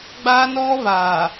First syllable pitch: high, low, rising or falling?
high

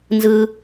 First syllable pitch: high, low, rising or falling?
high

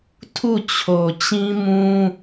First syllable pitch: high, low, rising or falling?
falling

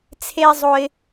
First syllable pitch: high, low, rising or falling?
high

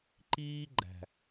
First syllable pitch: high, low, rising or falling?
high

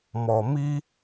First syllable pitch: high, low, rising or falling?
low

